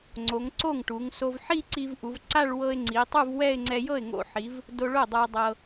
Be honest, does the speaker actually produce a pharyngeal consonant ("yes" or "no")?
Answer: yes